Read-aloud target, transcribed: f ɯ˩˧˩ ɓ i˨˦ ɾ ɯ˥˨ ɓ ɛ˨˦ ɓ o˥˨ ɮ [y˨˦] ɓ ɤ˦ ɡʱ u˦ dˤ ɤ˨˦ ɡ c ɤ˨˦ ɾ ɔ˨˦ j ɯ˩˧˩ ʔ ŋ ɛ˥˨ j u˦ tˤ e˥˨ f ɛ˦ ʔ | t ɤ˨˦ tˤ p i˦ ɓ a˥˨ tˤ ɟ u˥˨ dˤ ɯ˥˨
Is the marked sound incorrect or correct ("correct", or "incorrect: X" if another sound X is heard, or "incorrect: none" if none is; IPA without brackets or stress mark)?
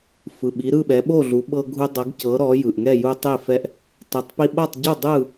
incorrect: u˨˦